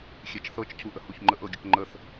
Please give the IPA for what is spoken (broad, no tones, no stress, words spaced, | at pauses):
xʲet͡ʃθɤt͡ʃ cʰuʔəhuçŋ͡ǃəʔ ɤɡʲəkŋ͡ǃəθ